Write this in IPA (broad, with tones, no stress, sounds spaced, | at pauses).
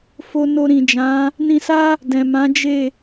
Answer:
f o˧ n o˧ ɾ ĩ˨ d͡ʒ ã˨˦ | n ĩ˧ s a˦ | d ɛ̃˨ m ã˨˦ d͡ʒ e˦˨